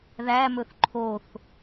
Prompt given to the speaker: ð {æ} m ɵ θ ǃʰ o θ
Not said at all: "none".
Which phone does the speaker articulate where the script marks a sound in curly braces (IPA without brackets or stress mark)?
æ